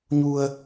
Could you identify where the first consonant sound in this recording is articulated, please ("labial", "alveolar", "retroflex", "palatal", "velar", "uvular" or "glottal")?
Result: palatal